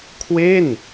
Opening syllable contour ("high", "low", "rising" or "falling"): falling